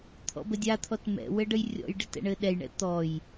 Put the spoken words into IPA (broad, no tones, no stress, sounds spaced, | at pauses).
t̪ʰ ɔ̰ b ə dʲ a t̪ʰ ɔ t m ɛ̰ w ɘ ɖ ə j rʲ ɔ̰ j ɖ ɪ t ɛ̰ ɳ ɘ ɗ ɛ j ɳ ɛ̰ t̪ ɔ j